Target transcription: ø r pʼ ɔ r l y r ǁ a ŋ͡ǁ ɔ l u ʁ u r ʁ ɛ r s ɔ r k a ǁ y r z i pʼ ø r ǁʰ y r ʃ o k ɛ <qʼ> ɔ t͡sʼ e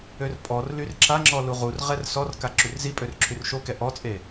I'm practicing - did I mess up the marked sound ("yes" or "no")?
yes